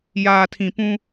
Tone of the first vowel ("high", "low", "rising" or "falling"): low